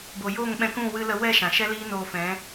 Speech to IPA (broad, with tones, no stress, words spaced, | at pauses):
bo˨jo˦˨ŋɓɛ̃˧kũ˦˨ wɨ˧lə˧wɛ˦˨ ʃã˨ʃɛ˦ liː˦ noː˧fɛ̃˨˦